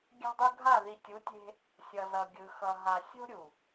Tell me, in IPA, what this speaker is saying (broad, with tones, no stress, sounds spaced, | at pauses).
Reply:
ɡʲ a̤˦ dˤ u˦ ɡʱ a˦˨ ð i˨ tʲ u˨˦ tʲ e̤˦ | sʲ ʌ˨ z ʌ˨ ɡʲ ɯ˨ x ʌ˨ ɦ a˨ sʲ o̤˦ ɾʲ u˨